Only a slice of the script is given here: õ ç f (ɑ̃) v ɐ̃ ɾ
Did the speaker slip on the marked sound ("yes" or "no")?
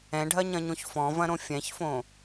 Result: yes